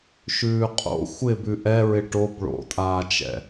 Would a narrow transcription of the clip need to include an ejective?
yes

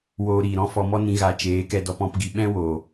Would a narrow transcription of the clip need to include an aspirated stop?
no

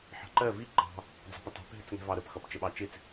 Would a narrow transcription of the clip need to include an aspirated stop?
no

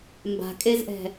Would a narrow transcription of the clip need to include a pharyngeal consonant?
no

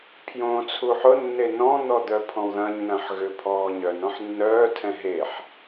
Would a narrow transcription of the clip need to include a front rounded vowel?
yes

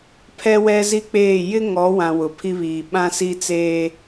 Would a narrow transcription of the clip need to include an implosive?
yes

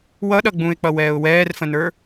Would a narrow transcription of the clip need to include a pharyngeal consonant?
no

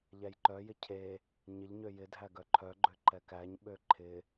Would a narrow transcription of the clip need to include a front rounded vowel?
yes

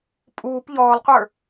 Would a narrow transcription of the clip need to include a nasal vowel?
no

